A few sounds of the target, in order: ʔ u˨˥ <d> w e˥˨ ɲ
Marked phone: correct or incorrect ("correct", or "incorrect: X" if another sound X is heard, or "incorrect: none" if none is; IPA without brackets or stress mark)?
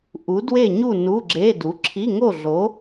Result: correct